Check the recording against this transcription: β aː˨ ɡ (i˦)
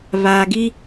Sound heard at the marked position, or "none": i˦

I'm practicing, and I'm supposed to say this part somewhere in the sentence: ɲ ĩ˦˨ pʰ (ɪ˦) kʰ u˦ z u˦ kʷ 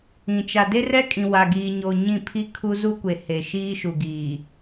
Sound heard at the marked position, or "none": i˦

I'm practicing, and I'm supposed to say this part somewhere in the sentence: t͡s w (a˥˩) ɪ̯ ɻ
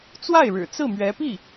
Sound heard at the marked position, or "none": a˥˩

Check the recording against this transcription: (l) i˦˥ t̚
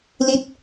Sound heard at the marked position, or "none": l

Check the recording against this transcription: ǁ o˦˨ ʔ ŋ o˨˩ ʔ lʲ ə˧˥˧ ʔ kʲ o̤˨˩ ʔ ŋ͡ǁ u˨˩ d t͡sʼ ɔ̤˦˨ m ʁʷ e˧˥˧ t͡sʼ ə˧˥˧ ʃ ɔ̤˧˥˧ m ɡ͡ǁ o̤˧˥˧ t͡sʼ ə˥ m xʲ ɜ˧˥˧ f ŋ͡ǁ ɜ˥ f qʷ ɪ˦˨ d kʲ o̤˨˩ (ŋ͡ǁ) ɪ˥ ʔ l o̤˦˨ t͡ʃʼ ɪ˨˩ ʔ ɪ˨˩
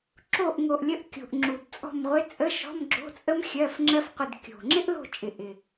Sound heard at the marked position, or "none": ŋ͡ǁ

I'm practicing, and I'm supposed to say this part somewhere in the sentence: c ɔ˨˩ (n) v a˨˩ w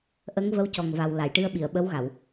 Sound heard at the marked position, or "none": ŋ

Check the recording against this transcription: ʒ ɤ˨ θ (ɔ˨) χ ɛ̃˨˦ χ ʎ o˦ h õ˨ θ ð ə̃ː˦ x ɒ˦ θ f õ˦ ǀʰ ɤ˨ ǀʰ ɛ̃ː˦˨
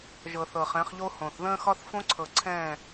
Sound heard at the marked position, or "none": ɤ˨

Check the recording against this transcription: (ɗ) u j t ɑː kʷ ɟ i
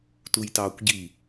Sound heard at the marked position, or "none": t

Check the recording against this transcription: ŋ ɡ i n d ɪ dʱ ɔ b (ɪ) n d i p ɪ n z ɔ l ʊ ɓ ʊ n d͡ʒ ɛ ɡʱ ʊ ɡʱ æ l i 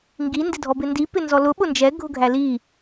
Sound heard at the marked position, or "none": ɪ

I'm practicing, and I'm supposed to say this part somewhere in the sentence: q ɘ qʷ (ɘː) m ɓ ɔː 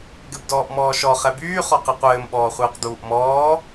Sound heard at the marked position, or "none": ɘː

